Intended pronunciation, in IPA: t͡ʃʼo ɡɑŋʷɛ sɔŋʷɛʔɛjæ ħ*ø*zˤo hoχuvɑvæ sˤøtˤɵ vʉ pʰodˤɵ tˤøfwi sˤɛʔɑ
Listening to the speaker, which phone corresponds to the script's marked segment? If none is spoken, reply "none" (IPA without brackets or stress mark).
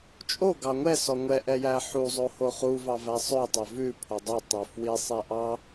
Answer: u